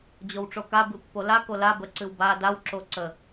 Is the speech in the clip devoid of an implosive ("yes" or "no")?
yes